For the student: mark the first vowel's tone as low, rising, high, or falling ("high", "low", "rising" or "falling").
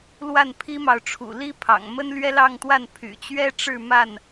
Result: falling